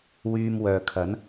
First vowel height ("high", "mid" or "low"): high